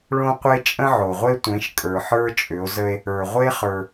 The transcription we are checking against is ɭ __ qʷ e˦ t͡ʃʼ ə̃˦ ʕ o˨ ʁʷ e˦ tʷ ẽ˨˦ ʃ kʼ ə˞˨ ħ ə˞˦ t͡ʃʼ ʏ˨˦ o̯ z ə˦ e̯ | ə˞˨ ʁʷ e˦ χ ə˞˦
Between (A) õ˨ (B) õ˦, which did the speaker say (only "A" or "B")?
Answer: B